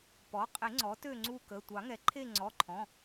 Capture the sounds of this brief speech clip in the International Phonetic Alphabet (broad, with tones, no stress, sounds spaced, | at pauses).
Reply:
p ɔ˩˥ qʼ e˨˩˦ ŋ͡ǀ ɔ˩˥ t ø˦˨ ŋ͡ǀ u˦˨ k ə˩˧˩ tʷ ɑ˨˩˦ ŋ ɛ˩˥ ǃʰ e˦˨ ŋ͡ǀ ɔ˩˧˩ ǃʰ ɔ̃˩˧˩